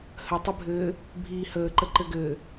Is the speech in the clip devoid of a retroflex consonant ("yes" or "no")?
yes